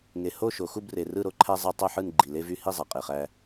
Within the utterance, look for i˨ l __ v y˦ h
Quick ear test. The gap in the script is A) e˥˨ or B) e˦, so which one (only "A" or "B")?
B